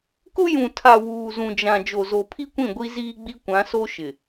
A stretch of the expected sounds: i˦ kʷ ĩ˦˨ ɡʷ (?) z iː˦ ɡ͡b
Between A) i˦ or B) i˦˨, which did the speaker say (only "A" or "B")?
A